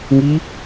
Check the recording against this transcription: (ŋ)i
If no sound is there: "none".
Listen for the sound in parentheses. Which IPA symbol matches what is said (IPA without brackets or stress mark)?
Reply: ŋ